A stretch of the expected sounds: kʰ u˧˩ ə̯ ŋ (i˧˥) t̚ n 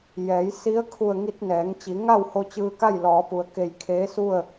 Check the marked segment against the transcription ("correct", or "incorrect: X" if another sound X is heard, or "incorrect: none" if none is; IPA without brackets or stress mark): incorrect: i˧